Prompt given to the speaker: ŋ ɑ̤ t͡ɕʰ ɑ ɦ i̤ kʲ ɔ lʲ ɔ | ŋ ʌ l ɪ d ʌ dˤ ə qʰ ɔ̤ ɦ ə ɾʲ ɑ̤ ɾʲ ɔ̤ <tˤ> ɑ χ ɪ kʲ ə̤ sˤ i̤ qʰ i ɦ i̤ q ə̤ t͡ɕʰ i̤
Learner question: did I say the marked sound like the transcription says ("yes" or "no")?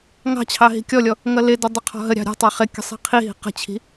yes